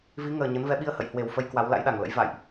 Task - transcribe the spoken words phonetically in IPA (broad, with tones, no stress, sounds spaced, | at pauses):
v i˨˦ ŋ əː˨˩ ɲ ə˨˦ n v ɛ˨˦ ɓ i˧ ə̯ h ə̰˧˨ j h w e˨˩ w f ə˧ j k w a˨˦ w l a̰˧˥ j ɗ a˨˩ ŋ l ə̰˧˥ j v a̰ː˧˨ j ʔ